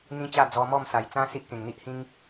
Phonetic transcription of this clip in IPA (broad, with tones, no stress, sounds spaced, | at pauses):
n̪ ĩ˦ t͡ɕ a˥˧ d͡z ɔ˧ m ɔ˥˧ m s a˨˩ j t͡s ã˦ s i˦ ʔ k ẽ˨˩ ŋ n̪ i˦ ʔ h ĩ˦ ŋ